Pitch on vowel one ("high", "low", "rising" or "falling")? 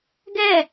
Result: falling